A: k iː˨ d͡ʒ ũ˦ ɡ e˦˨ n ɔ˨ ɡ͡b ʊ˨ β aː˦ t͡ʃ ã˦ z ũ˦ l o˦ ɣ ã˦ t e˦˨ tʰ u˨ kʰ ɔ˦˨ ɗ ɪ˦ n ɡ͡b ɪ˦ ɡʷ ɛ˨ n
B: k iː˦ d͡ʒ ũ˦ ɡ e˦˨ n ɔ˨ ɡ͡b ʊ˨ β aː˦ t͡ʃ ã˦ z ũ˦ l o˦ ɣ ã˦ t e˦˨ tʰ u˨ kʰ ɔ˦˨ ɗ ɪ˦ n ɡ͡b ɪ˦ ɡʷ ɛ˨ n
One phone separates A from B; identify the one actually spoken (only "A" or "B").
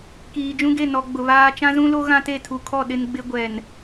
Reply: A